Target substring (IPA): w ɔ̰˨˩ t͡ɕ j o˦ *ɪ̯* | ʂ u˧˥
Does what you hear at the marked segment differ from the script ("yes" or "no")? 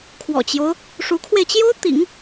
yes